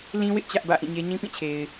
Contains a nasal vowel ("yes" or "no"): yes